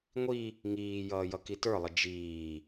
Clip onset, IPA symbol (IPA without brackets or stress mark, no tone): ŋʷ